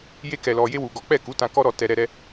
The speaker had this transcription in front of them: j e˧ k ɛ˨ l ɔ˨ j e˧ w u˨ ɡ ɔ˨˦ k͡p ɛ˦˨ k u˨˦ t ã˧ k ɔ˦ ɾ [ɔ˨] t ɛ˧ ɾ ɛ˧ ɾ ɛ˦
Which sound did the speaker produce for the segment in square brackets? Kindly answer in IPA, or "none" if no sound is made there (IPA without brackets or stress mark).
ɔ˧